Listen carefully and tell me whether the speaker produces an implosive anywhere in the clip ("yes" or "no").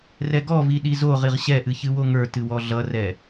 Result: yes